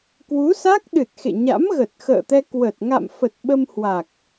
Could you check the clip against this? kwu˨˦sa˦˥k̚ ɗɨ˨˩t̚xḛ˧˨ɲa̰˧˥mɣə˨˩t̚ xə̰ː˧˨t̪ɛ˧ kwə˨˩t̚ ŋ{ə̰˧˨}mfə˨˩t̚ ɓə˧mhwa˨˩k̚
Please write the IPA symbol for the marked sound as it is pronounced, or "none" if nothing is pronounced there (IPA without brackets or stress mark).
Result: a̰˧˨